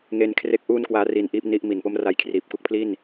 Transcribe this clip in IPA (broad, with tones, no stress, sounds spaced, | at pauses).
ŋ e˦˥ n kʰ r e˦˥ k̚ ʔ uː˥˩ n k w aː˦˥ r i˧ n ʔ iː˦˥ p̚ n i˦˥ ʔ m i˨˩ n p o˥˩ m r a˧ j kʰ r iː˨˩ p̚ k u˥˩ k̚ pʰ l i˥˩ n